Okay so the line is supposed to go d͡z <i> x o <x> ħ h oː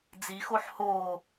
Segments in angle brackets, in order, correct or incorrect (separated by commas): correct, incorrect